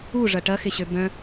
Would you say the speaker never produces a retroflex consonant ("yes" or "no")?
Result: no